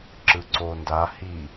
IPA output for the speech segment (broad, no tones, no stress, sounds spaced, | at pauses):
ǁ ɯ ǀ o n d a h i